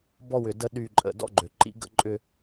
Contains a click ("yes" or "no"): yes